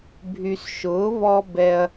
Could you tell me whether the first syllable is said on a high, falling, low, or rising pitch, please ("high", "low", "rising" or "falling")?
low